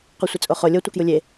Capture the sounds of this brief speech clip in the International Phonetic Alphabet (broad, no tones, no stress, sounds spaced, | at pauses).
q o sʷ ɛ t͡sʼ o χ o lʲ ɤ tʷ ɤ k j u lʲ e